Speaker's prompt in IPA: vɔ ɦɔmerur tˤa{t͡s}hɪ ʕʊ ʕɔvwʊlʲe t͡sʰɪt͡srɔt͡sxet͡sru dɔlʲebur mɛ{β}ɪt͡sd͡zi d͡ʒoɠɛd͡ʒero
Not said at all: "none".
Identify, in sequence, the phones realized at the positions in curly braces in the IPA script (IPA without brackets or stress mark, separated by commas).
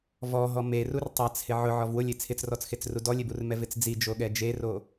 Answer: t͡s, v